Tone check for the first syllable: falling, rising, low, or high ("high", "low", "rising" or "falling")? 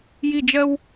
falling